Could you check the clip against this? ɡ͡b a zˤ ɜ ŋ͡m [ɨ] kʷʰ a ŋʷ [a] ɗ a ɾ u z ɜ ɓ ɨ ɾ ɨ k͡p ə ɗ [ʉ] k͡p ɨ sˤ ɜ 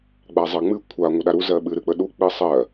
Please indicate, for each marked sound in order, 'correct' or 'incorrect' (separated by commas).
correct, incorrect, incorrect